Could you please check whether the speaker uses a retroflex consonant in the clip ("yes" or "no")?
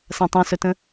no